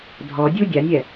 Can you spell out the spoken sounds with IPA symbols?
dʱ ɔ dʲ u dʲ a nʲ ɛ

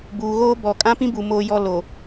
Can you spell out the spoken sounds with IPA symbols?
b uː˨ ɣ oː˦ b ɔ˨ kʼ ã˦ p ĩ˦ b u˨ m oː˦ j ɔ˦ l o˨

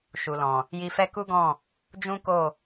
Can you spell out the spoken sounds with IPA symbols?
ʃ u˨ l ɔ̃˨ | j i˧ f ɛ˦ k u˦ ɡ ɔ̃˦˨ | d͡ʒ ũ˦ k o˦˨

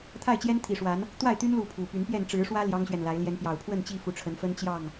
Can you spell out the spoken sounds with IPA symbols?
t̪ʰ a˥˨ ɪ̯ t͡ɕ j ɛ˦ n t̪ʰ i˨˩ ʂ w a˨˦ n | t̪ w a˥˨ ɪ̯ t̪ y˦ n l u˥˨ pʰ u˨˩ p y˨˦ n p j ɛ˥˨ n ʈ͡ʂ ɻ̩˨˦ ʂ w ä˦ l j ɑ˦ ŋ ɕ ɥ ɛ˨ n l a˨˦ ɪ̯ l j ɛ˨˦ n p j ɑ˨˩ ʊ̯ pʰ w ə˥˨ n t͡ɕ i˥˨ f u˨˦ ʈ͡ʂʰ ə˨˦ n f ə˦ n t͡ɕ j ɑ˥˨ ŋ

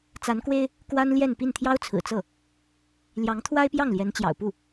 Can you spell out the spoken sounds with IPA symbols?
t͡s a˧˥ n k w e˥ ɪ̯ | k w a˥ n l j ɛ˥˧ n p i˥˩ n t̪ʰ j ɑ˥ ʊ̯ t͡sʰ ɹ̩˨˩ t͡s ɤ˥˩ | l j ɑ˧˥ ŋ t̪ʰ w a˥ ɪ̯ p j ɑ˥˩ ŋ l j ɛ˧˥ n t͡ɕ j ɑ̰˨˩ ʊ̯ p u˥˩

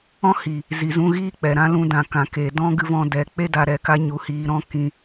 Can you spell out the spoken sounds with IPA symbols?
ɔ̃˦ h i˨ | z i˨ z ũ˧ ɣ iː˦ k͡p ɛ˨ ɾ ã˦ l ũ˧ d ã˨ k ã˨ k eː˨ d ɔ̃˦ ɡ ɨ˧ v ɔ̃˧ d ɛ˨ k͡p e˦ d a˨ ɾ ɛ˨ k a˧ ɲ u˨ h iː˨ ɾ ɔ̃˧ k ĩ˨

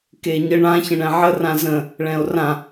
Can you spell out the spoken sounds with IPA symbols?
k e ɲ ə ɳ ã ç ə̃ ɳ ɛ̃ ʕ ə r ã z ə̃ | ɭ ɛ̃ o̯ r ã

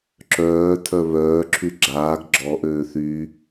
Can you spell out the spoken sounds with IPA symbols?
ǁ œː tʰ œ β œː ǁʰ y ɡ͡ǁ aː ɡ ɡ͡ǁ ɔ ʔ øː θ y

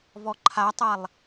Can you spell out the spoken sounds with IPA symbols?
v ɔ ǃʰ a tˤ a lˠ

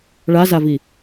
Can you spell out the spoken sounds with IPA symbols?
ɭ a z a v i

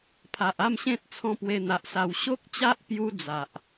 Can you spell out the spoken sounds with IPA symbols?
pʰ a˨ ʔ a˥˧ m ɕ ẽ˦ t̚ t͡sʰ ɔ̃˦ p w e˧ n̪ a˨ ʔ s a˧ w ɕ o˦ k̚ t͡ɕ a˦ ʔ p j u˧ d͡z a˨ ʔ

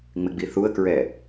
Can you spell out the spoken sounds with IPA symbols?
ŋ͡m ɪ ɡ͡b i θ u ə̯ k ɹ ɛ

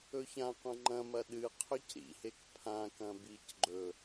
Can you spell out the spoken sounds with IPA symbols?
ɵ ç ã qʷ ɐ̃ ŋ͡ǃ ɐ̃ m ɐ ɗ ɨ qʰ ɵ c ɾ ḭ h e k pʰ ã k ɐ̃ b i c ɡ͡ǃ ɵ

